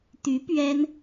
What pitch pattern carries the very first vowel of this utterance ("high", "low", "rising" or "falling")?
rising